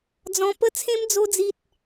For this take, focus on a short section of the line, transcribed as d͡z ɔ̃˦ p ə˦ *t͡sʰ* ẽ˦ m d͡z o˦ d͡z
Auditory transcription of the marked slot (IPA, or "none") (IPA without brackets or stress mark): t͡sʰ